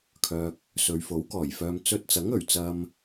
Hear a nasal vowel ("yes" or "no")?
no